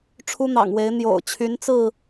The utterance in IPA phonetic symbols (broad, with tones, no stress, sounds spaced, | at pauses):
ʈ͡ʂʰ u˦ n̪ ɑ̰˨˩ ŋ w e˨˦ ɪ̯ n̪ j o̰˨˩ ʊ̯ t͡ɕʰ y˨˦ n t͡s ɹ̩˥˨